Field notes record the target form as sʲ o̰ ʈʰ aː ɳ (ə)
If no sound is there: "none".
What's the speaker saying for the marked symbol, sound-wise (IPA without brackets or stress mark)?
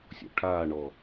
ɔ